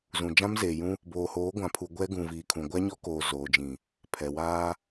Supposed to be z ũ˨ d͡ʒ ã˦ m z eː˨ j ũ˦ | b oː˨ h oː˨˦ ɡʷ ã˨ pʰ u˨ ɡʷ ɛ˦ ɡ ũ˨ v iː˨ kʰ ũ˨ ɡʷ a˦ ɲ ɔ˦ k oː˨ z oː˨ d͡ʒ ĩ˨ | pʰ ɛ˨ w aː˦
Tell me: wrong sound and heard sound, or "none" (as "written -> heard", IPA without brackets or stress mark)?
none